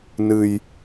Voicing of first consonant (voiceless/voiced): voiced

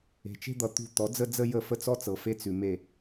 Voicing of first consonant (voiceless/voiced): voiceless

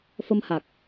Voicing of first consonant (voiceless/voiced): voiceless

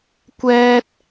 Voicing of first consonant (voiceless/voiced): voiceless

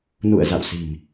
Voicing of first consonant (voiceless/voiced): voiced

